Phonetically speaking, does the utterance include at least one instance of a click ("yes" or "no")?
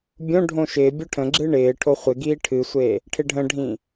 yes